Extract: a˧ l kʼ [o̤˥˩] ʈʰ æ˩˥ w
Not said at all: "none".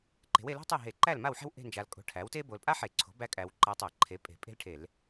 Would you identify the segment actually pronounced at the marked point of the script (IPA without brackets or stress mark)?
o̤˧